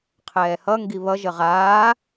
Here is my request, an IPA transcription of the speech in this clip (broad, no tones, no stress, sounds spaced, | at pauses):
qʰ ɛː h ʌ ŋ ɡ i β ʌ ʒ ə ʁ aː